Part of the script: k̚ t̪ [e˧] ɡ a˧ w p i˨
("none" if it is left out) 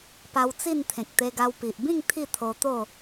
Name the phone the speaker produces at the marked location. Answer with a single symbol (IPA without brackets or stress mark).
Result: e˧